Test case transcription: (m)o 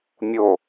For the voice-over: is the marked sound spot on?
no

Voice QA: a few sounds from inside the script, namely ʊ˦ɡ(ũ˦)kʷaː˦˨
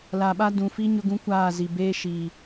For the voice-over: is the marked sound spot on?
yes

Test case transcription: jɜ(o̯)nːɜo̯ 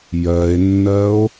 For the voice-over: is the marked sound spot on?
no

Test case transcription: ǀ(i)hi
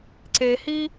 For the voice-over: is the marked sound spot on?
no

